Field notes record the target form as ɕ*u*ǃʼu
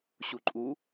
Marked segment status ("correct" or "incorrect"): correct